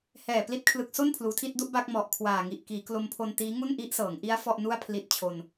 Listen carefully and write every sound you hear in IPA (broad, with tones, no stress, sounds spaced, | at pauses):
h ɛː˨˩ p l i˦˥ t̚ kʰ l ɯ˨˩ k̚ s o˥˩ n pʰ l uː˩˦ tʰ i˥˩ t̚ d u˦˥ ʔ b a˥˩ k̚ m ɔ˨˩ ʔ kʰ w aː˨˩ ŋ i˨˩ ʔ k iː˩˦ k l o˧ m pʰ o˧ n t iː˦˥ ŋ u˥˩ n ʔ i˦˥ ʔ s ɤː˩˦ ŋ ʔ i˦˥ a̯ f ɔ˥˩ ʔ n u˥˩ a̯ pʰ l i˦˥ t̚ t͡ɕʰ o˧ n